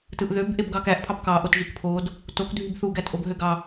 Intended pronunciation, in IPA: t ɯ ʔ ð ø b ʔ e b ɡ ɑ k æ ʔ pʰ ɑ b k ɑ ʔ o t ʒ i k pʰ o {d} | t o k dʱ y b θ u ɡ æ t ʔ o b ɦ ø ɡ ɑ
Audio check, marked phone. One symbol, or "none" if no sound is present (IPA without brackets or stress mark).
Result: d